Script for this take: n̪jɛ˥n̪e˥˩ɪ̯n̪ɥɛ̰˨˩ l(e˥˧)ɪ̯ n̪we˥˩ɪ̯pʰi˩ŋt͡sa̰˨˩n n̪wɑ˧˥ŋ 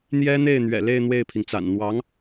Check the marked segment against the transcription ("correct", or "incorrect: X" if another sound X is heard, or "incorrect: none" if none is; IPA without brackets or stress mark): correct